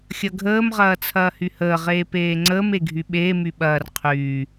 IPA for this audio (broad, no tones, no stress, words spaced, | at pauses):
xʲɐɡʱəːm ʁɐːt͡sʰɐːhyhəː ʁeːpeːŋ͡ǀəːm eɡʱyɓeː myɓɐːr qʰyː